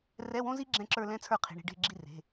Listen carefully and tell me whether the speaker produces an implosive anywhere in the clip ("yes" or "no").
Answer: no